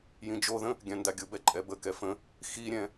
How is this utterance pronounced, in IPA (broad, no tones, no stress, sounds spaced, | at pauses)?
j ĩ d͡ʒ o ð ə̃ | ɡʲ ã n d a ɡʲ ʊ b ɛ ǃʼ ɛ b ə k ɛ f ə̃ | x i ɾʲ ɛ̃